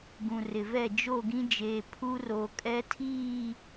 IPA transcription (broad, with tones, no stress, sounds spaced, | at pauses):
ɡ ũ˨ r ɪ˨ v ɛ˦˨ d͡ʒ o˦˨ ɡ ĩ˦ d͡ʒ eː˨ pʰ u˦ r o˨ kʼ ɛ˦ tʰ iː˦˨